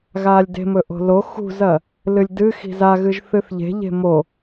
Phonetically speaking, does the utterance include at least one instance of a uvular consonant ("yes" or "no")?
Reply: no